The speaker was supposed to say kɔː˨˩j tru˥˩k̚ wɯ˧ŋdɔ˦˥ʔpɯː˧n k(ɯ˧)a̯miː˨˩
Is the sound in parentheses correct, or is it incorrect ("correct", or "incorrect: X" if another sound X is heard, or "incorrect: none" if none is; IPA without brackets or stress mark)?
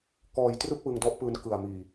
incorrect: ɯ˨˩